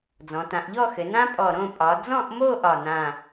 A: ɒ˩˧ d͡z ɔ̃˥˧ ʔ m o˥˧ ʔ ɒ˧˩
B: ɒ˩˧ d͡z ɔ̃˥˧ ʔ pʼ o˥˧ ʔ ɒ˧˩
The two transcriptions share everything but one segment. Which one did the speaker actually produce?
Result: A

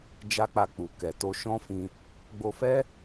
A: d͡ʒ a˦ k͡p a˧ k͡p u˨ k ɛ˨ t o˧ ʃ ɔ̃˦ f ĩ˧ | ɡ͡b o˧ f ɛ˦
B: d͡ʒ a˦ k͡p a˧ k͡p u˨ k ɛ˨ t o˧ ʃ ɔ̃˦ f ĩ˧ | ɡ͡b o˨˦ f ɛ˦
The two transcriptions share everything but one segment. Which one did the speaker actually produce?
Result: A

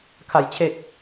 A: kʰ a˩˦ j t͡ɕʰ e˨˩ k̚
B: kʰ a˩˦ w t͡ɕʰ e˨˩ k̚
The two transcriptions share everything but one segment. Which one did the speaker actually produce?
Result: A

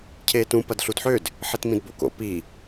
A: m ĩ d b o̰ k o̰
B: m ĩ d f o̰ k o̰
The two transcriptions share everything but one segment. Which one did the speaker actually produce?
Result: A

